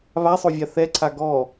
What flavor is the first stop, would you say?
click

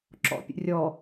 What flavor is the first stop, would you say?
click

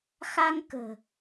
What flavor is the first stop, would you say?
plain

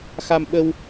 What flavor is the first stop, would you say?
implosive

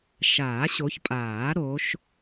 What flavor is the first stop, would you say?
ejective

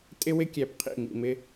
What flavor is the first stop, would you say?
ejective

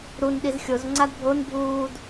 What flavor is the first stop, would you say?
implosive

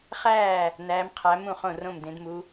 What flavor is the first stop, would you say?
aspirated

